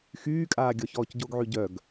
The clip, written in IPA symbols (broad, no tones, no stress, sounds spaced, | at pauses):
x yː kʼ aː ɡʲ ɔ ç ɔː c ɟ o ɡ ʕ y ɟ œ ɡ